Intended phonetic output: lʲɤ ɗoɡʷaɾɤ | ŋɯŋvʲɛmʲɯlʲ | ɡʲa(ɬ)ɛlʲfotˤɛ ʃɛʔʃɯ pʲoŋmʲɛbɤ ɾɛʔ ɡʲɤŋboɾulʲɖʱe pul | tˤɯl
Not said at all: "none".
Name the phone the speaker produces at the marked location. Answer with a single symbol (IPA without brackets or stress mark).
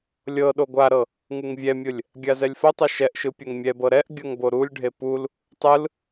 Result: z